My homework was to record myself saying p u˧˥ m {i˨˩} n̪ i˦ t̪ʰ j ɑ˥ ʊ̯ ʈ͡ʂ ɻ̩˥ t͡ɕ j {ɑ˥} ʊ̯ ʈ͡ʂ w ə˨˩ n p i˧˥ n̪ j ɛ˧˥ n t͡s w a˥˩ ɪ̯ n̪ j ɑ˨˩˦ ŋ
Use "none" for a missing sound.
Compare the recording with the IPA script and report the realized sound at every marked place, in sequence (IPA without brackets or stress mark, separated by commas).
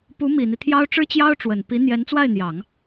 i˨˩, ɑ˥